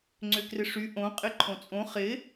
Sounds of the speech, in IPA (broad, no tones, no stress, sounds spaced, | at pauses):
ŋ͡ǀ ʏ k r ɪ ʂ y ʔ õ qʼ ɪ ǃʰ õ t͡sʼ õ χ ɪ